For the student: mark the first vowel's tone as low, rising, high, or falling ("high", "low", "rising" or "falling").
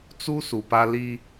high